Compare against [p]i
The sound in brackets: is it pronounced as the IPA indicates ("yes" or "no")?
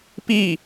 yes